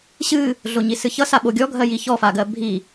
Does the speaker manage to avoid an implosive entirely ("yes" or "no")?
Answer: no